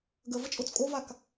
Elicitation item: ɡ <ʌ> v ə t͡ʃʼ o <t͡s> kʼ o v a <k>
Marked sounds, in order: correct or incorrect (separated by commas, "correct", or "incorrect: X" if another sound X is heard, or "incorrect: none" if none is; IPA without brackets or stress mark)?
incorrect: ə, correct, correct